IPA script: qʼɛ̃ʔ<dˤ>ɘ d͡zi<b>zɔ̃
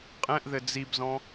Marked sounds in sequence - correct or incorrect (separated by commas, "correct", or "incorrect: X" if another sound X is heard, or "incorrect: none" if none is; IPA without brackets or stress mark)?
incorrect: ð, correct